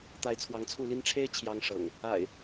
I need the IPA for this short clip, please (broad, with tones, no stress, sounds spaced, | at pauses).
t̪ a˨˦ ɪ̯ t͡sʰ w ɑ˨˦ ŋ t͡sʰ u˥˨ l i˦ n ʈ͡ʂʰ e˦ ɪ̯ t͡ɕʰ j ɑ˦ ŋ ʂ ɤ̰˨˩ ŋ | a̰˨˩ ɪ̯